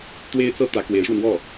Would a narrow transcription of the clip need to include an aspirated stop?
no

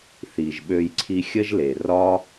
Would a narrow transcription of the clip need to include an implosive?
yes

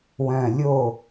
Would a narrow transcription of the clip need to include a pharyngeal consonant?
no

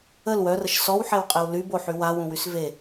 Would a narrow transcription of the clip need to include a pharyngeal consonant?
yes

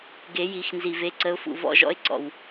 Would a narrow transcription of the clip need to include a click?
yes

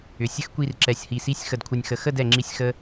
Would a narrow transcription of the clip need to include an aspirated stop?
yes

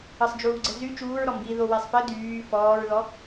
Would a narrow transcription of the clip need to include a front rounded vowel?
yes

